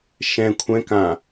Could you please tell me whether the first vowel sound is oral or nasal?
nasal